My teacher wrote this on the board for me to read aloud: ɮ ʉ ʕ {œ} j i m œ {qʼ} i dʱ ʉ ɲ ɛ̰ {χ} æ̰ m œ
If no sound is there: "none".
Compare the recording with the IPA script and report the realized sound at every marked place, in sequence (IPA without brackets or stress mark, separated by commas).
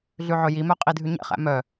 ɵ, qʼ, χ